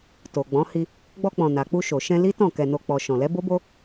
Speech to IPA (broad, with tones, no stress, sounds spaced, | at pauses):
t o˨ ɡ͡b ɔ̃˨˦ h i˧ | ɡ͡b ɔ˧ k͡p ɔ̃˨ n a˨ k͡p u˧ ʃ o˨ ʃ ɛ̃˧ l i˦ t ɔ̃˦˨ k ɛ˧ n o˧ k͡p ɔ˨ ʃ ɔ̃˨ l ɛ˨˦ b o˦ b o˦